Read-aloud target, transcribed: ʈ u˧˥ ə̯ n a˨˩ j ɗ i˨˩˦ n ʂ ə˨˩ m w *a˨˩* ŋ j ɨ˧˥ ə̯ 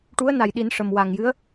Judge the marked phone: correct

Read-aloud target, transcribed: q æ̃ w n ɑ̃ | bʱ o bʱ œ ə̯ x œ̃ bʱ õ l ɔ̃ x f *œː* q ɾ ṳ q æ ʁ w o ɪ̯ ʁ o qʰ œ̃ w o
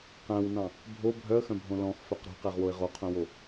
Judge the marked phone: incorrect: œ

